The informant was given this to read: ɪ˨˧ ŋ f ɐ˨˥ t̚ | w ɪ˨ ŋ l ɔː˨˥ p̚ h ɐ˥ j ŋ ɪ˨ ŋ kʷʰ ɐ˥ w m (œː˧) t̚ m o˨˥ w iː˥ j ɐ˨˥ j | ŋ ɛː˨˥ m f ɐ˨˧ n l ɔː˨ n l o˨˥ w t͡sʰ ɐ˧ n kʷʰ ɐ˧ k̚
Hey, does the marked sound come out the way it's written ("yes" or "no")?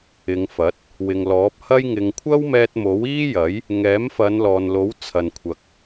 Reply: no